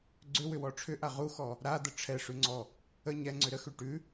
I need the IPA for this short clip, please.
ɡ͡ǀʏwʏwɔ ʈ͡ʂʰʏʔa ʁuxɔ | ɾad̪ə ʈ͡ʂʰɛʂʉŋ͡ǀɔ | ə ɲɛŋ͡ǀʏ ɾəxʉ ʈʉ

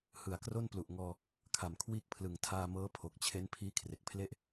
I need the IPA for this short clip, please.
hɯ˩˦a̯kro˥˩nplu˨˩ʔŋɔː˧ | kʰa˨˩mkʰwiː˦˥k̚pʰlɯ˨˩ŋ tʰaː˧ mɤː˦˥pʰo˨˩k̚t͡ɕʰe˦˥n pʰiː˦˥kʰre˨˩k̚pʰle˥˩ʔ

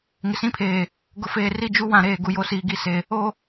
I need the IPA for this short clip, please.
ŋɪ˨sĩ˦pʰeː˨ | ɡʊ˨feː˨ri˦˨ d͡ʒu˦wã˨ɾeː˨ ɡu˨jo˨˦siː˨ ɡi˦se˨ | o˨

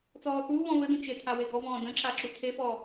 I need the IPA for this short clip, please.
t͡sɔːθuːβɔ̃ βɘd̪ə̃ t͡ʃet̪ʰa weɡɔvɔ̃ː də̃ǁa ǁut̪ʰefɔː

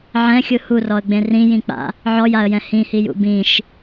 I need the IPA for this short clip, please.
ʕɛ̃xʲɯ hurɔə̯ɡ͡bẽ rĩjĩk͡pa̰ | ʕɔjaə̯jɛ̃ hĩhijṵ bĩʃ

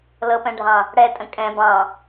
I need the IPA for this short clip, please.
lɤpɛ̃ɖʱɑ̃ | ɽɛtʼə̃ kʼɛ̃ bɑ̃

